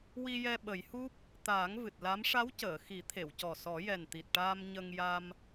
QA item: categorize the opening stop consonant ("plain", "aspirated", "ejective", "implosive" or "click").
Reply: implosive